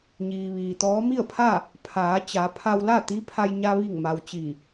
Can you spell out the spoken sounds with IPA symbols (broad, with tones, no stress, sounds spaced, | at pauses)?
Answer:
ɲ iː˩ ʋ iː˩ t̪ ɔː˧˥ m i˥˨ ə̯ pʰ a˥˨ | pʰ aː˩˧ t͡ɕ a˩˧ pʰ a˧ w l a˥˨ t̪ i˧˥ pʰ a˧ j ɲ a˧ ʋ i˧˩ ŋ m a˩ w t͡ɕ i˧˩